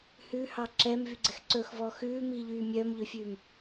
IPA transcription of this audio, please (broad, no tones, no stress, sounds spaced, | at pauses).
h ʉ h ɑ ǁ ɛ m v y ɡ͡ǀ ɛ x ǀ ɵ x v ɔ x ʉː m iː ʎ yː mʲ œː m ʎ ø fʲ ʉː m